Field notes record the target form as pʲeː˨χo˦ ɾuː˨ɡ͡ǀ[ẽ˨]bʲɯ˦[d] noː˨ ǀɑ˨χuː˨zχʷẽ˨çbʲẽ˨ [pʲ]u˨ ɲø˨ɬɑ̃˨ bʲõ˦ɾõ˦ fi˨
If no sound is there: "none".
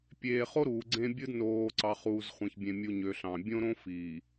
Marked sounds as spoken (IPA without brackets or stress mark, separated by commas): ẽ˦, d, mʲ